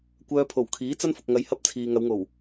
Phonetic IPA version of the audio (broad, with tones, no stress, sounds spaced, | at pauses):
kʷ œː˧ pʰ o˨˩ w kʰ iː˨˥ t͡s ɐ˥ n f ʊ˨ k̚ ŋ ɐ˨˧ j h ɐ˥ p̚ t͡sʰ iː˨ ŋ ɐ˨˧ w ŋ o˨˩ w